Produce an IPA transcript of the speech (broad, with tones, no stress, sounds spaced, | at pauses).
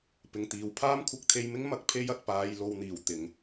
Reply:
p ɪ˨ ŋ t̪ iː˨ w pʰ aː˥ m kʷʰ ɪ˧ k̚ t̪ʰ e˧ j m ɪ˥ ŋ m ɐ˨ k̚ pʰ e˨˧ j ɐ˨ t̚ p aː˧ j l o˧ w n̪ iː˨˩ w t̪ ɪ˨ ŋ